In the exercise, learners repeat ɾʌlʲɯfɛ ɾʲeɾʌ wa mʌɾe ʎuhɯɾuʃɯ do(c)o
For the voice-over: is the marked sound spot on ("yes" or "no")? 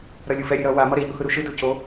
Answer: yes